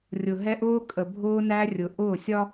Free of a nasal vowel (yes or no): yes